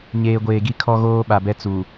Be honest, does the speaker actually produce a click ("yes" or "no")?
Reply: no